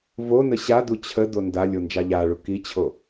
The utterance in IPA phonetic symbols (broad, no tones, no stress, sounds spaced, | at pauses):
v o n ə ɕ a d u t͡ɕʰ ə d o n d a lʲ o n d͡ʒ ɑ ʎ a ɭ u k i t͡ɕʰ o